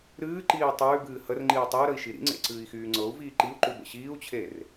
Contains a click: yes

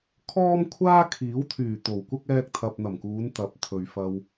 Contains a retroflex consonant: no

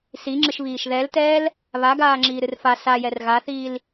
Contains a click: yes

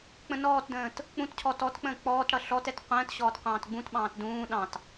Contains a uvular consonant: yes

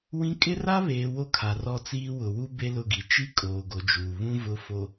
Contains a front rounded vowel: no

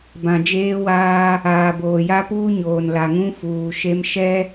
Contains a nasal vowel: yes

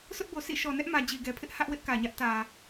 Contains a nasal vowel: no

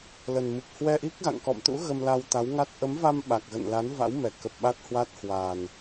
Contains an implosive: yes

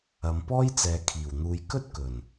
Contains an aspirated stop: yes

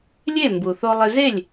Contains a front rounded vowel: no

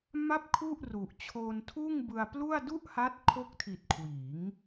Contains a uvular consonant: no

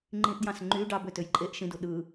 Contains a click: yes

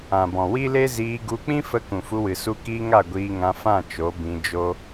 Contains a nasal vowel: yes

